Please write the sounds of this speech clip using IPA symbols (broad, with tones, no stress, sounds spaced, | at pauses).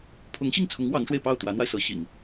pʰ ʊ˧˥ ŋ ɕ i˥˩ ŋ t͡sʰ ʊ˧˥ ŋ w ɑ˧˥ ŋ ʂ w e˧ ɪ̯ p ɑ˥˩ ʊ̯ t̪ w ä˧˥ n̪ w a˧ ɪ̯ s ɤ˧˥ ɕ ḭ˨˩˦ ŋ